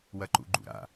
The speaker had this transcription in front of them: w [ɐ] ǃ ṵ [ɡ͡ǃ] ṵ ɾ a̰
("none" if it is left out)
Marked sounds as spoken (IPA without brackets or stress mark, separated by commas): ɐ, ɡ͡ǃ